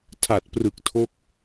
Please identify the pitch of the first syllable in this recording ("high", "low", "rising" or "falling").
low